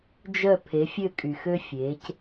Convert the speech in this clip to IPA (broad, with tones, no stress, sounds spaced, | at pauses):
d͡ʒ œ˦˨ pʰ e˨˦ fʲ ø˦˨ kʼ y˨ x ø˦ fʲ eː˨˦ c